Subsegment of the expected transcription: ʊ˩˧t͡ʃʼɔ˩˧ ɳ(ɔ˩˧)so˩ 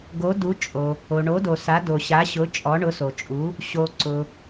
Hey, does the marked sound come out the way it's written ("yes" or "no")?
no